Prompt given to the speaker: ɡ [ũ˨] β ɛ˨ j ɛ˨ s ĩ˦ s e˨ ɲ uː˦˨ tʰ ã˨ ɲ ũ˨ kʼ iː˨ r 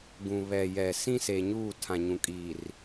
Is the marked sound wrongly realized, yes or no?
no